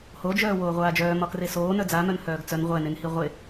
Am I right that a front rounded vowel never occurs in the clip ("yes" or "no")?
no